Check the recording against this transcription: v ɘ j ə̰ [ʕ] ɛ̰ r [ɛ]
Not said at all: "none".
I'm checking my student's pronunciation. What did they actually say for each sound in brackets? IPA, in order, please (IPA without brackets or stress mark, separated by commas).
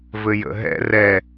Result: ɦ, ɛ